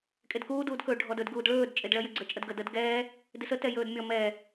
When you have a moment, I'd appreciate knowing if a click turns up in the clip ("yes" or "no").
yes